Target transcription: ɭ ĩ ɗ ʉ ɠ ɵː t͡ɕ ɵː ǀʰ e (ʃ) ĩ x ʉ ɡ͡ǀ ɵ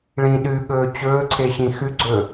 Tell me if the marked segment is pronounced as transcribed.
no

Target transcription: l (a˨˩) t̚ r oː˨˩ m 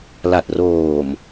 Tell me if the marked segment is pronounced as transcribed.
yes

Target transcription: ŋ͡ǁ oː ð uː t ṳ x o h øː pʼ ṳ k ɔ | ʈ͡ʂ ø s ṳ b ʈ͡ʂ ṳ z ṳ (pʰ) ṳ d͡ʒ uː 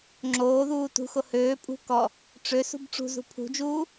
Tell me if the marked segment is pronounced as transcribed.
yes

